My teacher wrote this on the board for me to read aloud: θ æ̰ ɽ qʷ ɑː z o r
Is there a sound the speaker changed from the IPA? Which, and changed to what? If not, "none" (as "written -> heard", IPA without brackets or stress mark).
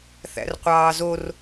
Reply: ɽ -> r